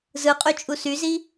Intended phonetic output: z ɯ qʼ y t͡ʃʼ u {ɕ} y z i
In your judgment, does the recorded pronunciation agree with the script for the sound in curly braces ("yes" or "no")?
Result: no